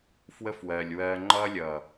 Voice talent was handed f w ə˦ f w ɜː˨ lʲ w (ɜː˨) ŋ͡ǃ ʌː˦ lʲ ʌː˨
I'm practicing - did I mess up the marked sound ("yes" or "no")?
yes